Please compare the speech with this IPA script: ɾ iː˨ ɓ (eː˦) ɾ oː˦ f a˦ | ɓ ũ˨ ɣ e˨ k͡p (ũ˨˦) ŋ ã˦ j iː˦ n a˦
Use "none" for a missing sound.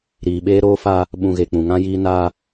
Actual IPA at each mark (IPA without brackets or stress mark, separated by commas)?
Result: eː˦, ũ˨